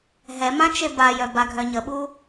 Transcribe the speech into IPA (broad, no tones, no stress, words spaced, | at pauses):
ɦɛmã t͡ʃebajœ baɡʱœɲəɓu